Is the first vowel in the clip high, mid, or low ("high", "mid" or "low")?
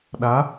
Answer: low